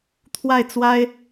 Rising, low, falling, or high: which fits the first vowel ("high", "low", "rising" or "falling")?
falling